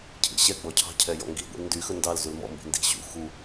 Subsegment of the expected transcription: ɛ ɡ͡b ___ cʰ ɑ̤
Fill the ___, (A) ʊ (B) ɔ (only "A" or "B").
B